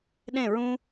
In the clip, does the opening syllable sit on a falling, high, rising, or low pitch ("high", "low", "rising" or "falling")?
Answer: falling